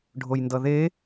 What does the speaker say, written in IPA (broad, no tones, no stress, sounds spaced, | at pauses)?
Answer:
ɖʱ o j n d ʌ ð e